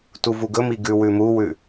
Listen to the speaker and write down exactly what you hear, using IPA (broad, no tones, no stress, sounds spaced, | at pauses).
t u v u ɡ ɵ m i ɡ ʉ w ʉ m u w ʉ